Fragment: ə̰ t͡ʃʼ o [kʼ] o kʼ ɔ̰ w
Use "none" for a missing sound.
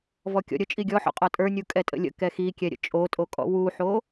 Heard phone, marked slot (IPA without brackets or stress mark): tʼ